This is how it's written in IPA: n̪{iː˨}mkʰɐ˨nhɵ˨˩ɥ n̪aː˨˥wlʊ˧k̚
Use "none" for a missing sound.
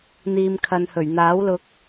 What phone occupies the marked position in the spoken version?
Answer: iː˨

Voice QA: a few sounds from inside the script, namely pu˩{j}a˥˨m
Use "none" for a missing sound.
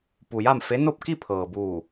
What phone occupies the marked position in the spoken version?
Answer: j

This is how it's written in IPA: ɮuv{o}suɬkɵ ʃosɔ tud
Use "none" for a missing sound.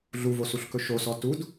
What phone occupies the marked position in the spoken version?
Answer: o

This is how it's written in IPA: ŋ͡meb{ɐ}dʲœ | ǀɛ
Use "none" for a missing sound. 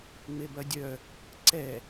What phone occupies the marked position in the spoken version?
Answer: ɐ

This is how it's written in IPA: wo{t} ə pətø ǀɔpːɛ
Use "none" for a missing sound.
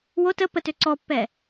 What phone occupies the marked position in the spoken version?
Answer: t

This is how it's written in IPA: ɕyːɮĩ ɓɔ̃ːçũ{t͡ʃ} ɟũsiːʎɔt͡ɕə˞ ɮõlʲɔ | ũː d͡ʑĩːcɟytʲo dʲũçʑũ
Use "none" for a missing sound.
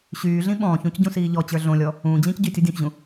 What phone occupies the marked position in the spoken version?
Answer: c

